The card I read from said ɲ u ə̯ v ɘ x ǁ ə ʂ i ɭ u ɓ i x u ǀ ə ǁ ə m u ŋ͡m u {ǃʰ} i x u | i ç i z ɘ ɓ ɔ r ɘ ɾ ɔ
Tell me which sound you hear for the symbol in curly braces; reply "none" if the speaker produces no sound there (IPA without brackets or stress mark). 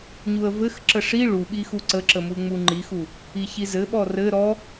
ŋ͡ǃ